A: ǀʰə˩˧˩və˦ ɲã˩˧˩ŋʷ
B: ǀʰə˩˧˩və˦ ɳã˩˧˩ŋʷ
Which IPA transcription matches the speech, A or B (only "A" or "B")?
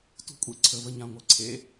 A